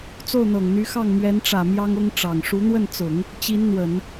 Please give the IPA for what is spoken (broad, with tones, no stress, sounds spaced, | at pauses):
t͡s o˥˩ ʊ̯ n̪ ɤ˨˩ ŋ n̪ y˧˥ x ɑ˥˩ ŋ m ɥ ɛ˧˥ n ʈ͡ʂ ä˨˩ m j ɑ˥ ŋ ʊ˥ ŋ ʈ͡ʂ ɑ˨˩ ŋ ʂ u˧˥ n̪ w ə˥˩ n t͡s ʊ˨˩˦ ŋ | t͡ɕ i˧˥ n n̪ w ə˨˩˦ n